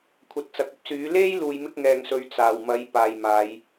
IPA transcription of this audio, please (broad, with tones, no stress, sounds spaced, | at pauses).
kʷʰ ɐ˨ t̚ t͡s ɐ˨ k̚ ɐ˥ p̚ s yː˨˥ l e˥ j l uː˨˧ j m ɪ˥ k̚ ŋ ɛː˨ ŋ s ɵ˨˧ ɥ t͡s aː˨˩ w m ɐ˨˥ j p aː˨ j m aː˨˧ j